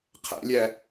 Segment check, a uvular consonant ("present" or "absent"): present